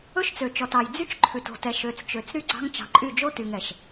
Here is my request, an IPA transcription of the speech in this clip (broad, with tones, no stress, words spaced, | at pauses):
ɵ˦ʃt͡sø˨t͡ʃɔ˨tɑ˨j d͡zy˦t͡ʃ ǃʰʉ˨to̤˨ tɛ˨ ʃø˨t͡st͡ʃø˨t͡s ɾy˦ɡ͡ǀɑ̤˦ŋt͡ʃɑ̤˨ǃʼy˦˨ d͡ʒo˦ty˨ŋ ɛ˨ʃ